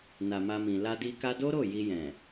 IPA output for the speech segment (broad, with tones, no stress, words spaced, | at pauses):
na˨ma˧mĩ˨ la˧di˧ ka˧do˦ɾo˦˨ ji˧jɛ̃˨